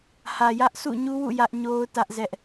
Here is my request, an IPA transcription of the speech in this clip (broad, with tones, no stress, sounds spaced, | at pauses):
h ä˨ j ä˦ ʔ sʰ ṵ˦˨ ɲ u˦ w ṵ˦˨ j ä˦ ʔ ɲ o˦ ʊ̯ t ä˦ ʔ z ɛ˦ ʔ